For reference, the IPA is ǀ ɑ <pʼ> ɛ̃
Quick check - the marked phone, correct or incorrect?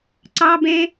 incorrect